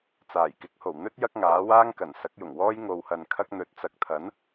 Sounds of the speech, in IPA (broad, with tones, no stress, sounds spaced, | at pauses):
t͡s aː˨˩ j k ɪ˨˥ k̚ h o˨˩ w n̪ ɵ˥ t̚ j ɐ˥ k̚ ŋ aː˨˥ w aː˥ ŋ k ɐ˨˩ n s ɐ˨˥ k̚ j ʊ˨˩ ŋ w ɔː˥ j ŋ o˧ w h ɐ˧ n kʰ ɐ˥ k̚ n̪ ɵ˨˥ t̚ t͡s ɐ˨˥ k̚ t̪ʰ ɐ˨˥ n